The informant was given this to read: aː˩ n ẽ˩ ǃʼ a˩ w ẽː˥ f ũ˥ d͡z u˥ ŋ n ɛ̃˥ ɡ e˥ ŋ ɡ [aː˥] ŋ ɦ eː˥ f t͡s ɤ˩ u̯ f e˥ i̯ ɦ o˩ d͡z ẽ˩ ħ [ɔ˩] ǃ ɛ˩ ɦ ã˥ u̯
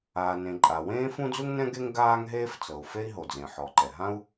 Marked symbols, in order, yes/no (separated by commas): yes, yes